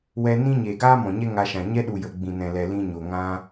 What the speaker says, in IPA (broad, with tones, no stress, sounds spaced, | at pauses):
w ɛ˧ n ĩ˦ ɲ eː˨ ɡ aː˦ m ɔ̃˨ ɲ ɛ˦ ŋ a˧ ʃ ã˨ ɲ ɛ˦ ɗ u˨ j ə˨ ɡ͡b ĩ˨ n ɛ̃˨ l ɛ˨ l ĩ˧ ɲ o˨ ŋ ã˦